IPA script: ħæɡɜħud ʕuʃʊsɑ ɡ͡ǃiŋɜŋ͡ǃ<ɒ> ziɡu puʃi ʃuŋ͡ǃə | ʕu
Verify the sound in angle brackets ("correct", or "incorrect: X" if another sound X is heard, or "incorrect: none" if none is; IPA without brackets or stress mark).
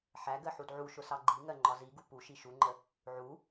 correct